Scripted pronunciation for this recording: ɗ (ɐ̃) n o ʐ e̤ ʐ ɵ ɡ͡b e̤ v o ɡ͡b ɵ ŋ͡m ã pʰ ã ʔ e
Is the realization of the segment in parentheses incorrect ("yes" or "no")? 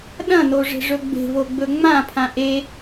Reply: no